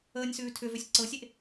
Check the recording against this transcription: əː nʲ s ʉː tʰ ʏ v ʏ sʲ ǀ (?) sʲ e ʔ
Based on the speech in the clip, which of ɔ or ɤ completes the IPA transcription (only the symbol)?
ɤ